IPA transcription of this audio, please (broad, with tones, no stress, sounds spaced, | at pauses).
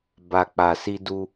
b a˨ k͡p a˨ s i˧ d u˧